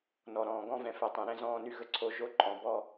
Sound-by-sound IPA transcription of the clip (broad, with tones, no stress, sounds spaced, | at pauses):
n ɔ˨ ɾ ɔ̃ː˨ ɡ ɔ̃˦ v ɛ̃˨ f ɛ˨ tˤ ɛ̃˨ ɾ ɛ̃˦ z ɔ̃ː˦ n y˦ ɣ ə˦ ǀʰ o˦ ʒ o˦ ǃʼ ɔ̃˨ b ɔ˦˨